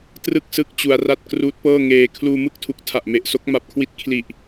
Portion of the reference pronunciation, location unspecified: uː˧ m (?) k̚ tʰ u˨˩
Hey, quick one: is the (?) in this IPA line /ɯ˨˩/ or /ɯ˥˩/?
ɯ˥˩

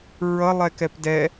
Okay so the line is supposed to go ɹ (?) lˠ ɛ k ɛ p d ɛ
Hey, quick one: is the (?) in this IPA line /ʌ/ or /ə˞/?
ʌ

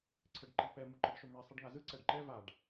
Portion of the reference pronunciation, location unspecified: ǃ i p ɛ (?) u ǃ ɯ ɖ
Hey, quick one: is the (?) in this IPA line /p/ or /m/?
m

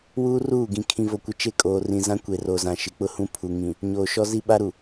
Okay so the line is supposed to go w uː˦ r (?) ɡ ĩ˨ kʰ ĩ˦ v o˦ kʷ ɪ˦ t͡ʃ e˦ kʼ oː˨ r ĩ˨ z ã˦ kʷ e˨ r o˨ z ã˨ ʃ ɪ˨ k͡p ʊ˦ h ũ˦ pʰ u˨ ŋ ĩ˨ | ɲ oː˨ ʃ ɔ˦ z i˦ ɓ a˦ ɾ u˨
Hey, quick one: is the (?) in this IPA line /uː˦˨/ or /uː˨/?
uː˦˨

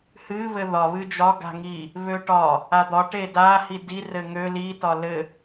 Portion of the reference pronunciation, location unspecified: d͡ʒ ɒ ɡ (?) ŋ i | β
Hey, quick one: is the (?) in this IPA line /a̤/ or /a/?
a̤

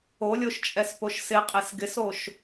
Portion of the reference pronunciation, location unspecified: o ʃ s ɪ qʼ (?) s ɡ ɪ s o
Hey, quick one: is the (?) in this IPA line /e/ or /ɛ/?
e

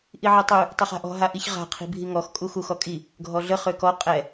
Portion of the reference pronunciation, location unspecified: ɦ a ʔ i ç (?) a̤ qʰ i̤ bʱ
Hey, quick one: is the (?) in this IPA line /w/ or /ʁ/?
ʁ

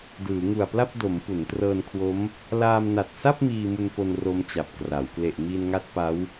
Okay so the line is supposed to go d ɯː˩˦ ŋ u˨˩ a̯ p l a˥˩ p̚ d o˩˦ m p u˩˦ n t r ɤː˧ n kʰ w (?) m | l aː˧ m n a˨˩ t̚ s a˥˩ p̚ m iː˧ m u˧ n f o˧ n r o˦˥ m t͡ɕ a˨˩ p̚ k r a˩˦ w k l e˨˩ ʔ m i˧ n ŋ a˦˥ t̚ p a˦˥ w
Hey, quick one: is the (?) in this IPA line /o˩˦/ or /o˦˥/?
o˦˥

